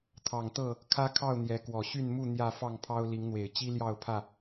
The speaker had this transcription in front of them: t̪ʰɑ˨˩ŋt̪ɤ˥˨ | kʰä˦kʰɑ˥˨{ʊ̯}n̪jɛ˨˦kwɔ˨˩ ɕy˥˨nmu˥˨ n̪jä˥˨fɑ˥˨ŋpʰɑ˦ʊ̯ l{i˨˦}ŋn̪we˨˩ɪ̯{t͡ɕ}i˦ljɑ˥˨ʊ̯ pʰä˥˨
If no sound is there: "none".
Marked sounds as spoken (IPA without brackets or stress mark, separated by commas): ʊ̯, i˨˦, t͡ɕ